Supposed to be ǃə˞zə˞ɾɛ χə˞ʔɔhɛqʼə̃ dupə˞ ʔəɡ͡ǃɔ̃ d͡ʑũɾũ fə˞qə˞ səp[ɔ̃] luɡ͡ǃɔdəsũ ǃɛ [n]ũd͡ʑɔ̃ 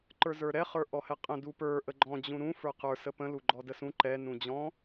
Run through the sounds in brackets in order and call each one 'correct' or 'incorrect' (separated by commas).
incorrect, correct